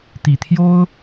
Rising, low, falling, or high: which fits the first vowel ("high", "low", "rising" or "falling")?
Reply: low